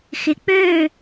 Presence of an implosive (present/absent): absent